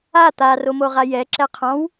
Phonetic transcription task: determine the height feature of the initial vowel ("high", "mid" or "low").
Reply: low